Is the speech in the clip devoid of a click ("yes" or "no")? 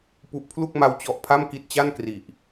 yes